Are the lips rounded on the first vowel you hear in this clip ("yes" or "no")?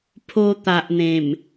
yes